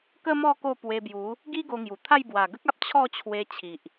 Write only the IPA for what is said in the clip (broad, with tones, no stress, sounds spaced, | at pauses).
k ə˦ m ɔ˥˧ k o˥˧ p w e˧ b j u˨˦ | ɡ i˦ ɡ o˧ ŋ j u˨˩ t̪ʰ a˥˧ j b w a˨˩ ɡ ə˦ k̚ a˦ p̚ t͡ɕʰ ɔ˥˧ t͡ɕʰ w e˧ t͡ɕʰ i˨ ʔ